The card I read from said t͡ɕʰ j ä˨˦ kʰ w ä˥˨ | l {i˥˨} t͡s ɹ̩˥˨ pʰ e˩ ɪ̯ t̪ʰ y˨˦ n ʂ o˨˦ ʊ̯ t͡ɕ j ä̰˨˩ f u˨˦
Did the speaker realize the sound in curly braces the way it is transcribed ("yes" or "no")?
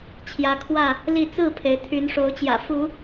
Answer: yes